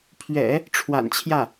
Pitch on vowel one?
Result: low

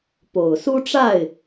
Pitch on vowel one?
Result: low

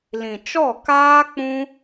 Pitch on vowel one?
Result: low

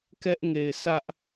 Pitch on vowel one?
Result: high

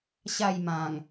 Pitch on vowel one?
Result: falling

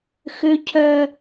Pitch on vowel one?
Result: high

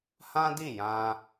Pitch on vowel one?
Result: high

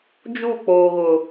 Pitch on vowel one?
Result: falling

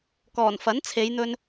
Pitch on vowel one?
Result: low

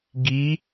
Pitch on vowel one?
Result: rising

